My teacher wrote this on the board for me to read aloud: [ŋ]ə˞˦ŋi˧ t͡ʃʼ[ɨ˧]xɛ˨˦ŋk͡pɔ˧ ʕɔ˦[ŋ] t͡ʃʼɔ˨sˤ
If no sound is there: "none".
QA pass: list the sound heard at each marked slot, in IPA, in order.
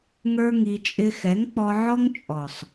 ŋ, ɪ˧, ŋ

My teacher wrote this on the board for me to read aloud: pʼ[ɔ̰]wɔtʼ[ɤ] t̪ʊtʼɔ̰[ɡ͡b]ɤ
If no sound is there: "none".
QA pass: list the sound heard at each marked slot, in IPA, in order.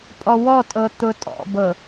ɔ, ɤ, b

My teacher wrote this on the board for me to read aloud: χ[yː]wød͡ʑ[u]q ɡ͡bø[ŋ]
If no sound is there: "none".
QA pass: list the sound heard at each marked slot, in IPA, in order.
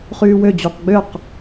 yː, u, q

